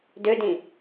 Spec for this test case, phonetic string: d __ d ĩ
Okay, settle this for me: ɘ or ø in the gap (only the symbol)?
ø